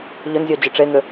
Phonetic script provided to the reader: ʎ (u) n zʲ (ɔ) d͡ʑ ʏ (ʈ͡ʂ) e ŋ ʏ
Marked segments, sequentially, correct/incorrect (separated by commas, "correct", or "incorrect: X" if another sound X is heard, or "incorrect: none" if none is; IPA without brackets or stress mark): incorrect: ʏ, correct, correct